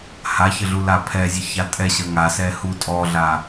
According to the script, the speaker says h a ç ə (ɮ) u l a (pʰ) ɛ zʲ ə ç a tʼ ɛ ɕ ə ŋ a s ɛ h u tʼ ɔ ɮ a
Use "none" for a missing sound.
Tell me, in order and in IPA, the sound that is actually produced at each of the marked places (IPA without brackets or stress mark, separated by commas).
ɮ, pʰ